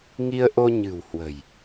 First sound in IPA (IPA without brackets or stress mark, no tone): ŋ